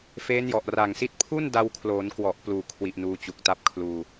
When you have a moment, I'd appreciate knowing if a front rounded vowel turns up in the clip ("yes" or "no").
no